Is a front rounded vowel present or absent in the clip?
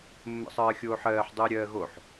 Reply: absent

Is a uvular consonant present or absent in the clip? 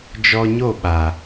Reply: absent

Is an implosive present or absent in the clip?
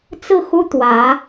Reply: absent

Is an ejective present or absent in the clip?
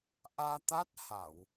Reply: absent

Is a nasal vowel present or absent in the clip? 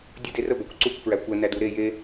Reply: absent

